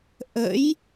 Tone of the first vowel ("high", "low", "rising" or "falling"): rising